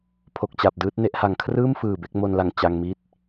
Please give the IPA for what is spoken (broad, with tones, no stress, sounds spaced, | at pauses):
pʰ o˨˩ k̚ t͡ɕ a˨˩ p̚ d ɯː˦˥ t̚ n e˦˥ ʔ h a˨˩ ŋ kʰ r ɯː˥˩ m f ɯː˨˩ b e˥˩ k̚ m o˧ n l a˨˩ ŋ t͡ɕ a˧ ŋ m i˥˩ t̚